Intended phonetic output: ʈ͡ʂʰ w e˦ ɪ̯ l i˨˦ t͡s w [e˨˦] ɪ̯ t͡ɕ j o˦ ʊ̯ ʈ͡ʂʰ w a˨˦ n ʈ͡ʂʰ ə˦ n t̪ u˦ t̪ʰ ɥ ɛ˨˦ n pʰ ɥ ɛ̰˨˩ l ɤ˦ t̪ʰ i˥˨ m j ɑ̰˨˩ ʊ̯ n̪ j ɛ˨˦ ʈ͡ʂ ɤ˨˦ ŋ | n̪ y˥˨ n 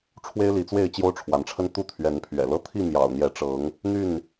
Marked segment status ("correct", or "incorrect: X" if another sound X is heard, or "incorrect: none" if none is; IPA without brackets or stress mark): incorrect: e˥˨